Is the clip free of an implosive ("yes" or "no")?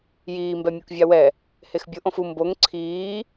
yes